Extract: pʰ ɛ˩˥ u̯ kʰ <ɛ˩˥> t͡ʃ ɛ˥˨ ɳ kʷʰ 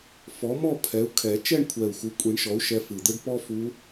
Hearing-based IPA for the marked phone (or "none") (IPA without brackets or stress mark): ɛ˨˩˦